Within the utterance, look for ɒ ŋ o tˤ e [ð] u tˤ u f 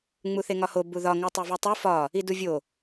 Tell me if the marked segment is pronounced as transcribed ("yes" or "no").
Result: no